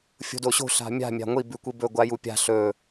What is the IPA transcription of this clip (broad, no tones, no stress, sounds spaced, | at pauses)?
fʲ o̤ d o ɕ o̤ ɬ a̤ mʲ a̤ mʲ a̤ ŋʷ i b ʉ kʷ i b ɵ ɡʷ a j u pʲ a̤ ɬ ɵ